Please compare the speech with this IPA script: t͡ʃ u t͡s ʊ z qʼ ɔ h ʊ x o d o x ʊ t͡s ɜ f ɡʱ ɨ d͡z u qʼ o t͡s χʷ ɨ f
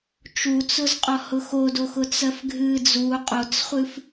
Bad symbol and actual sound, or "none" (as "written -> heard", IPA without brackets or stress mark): none